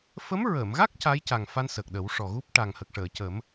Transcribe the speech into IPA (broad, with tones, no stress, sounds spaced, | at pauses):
f ə˧˥ m ɹ ə˨˩˨ m ɣ a˦˥ k̚ c a˧˥ j c a˨˩ ŋ f a˧ n s əː˨˩ k̚ ɗ ə˨˩˦ w ʂ ɔ˨˩ ɣ u˦˥ p̚ ʈ a˨˩ ŋ h ə˨˩ k̚ ʂ əː˨˩˨ c ə˨˩˦ m